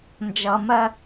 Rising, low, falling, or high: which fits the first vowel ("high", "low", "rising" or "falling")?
low